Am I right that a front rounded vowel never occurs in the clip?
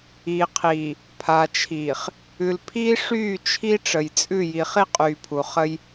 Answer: no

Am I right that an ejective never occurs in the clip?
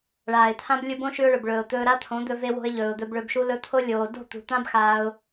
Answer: yes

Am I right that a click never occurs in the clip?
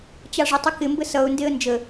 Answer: yes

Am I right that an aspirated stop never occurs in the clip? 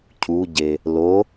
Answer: no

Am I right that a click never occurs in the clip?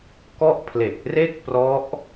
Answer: yes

